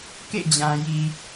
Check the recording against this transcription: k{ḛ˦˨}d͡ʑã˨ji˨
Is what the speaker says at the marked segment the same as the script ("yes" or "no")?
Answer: yes